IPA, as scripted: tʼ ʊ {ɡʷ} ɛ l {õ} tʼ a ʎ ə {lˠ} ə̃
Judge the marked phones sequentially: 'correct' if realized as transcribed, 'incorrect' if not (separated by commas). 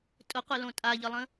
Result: incorrect, correct, correct